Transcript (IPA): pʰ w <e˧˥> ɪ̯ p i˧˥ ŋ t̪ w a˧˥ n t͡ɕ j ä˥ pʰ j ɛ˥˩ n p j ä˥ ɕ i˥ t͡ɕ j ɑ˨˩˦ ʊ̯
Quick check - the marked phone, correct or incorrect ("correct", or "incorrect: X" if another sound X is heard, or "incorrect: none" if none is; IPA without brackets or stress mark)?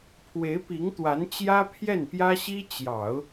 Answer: correct